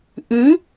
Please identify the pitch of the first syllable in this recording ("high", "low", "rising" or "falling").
rising